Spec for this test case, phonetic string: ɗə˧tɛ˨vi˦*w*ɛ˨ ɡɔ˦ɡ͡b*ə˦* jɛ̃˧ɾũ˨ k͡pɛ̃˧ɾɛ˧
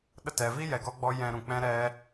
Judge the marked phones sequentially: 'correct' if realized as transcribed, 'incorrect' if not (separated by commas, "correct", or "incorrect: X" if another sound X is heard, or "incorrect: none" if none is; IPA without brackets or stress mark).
incorrect: j, incorrect: ɔ˦